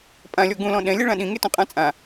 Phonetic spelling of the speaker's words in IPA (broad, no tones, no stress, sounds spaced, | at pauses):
pʼ ã lʲ ɔ ɡ ũ l ɔ̃ ɗ ɛ̃ lʲ ɛ ɭ ã ɗ ĩ ŋ e t ũ qʼ ã t͡sʼ ã